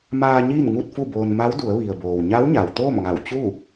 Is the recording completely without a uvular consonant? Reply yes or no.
yes